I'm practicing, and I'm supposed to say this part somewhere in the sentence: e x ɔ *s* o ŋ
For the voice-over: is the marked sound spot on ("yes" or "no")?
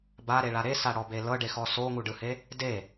yes